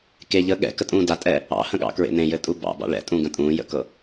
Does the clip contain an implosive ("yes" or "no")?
yes